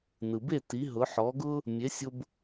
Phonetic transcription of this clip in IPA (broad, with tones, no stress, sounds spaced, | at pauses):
n ɯ˩ b e˥˩ t i˩˥ ɦ ʊ˩˥ ħ ɔ˩˥ ɡ ʊ˥ | mʲ e˩˥ sʲ ʊ˧ b